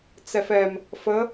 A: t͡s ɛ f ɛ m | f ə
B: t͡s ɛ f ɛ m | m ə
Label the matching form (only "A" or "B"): A